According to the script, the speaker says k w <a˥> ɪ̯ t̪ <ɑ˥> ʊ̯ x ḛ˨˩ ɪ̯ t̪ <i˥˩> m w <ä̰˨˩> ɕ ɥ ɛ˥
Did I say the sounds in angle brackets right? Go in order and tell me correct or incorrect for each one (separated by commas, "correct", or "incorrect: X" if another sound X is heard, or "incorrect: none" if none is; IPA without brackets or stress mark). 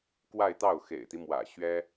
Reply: incorrect: a˥˧, incorrect: ɑ˥˩, incorrect: i˦, correct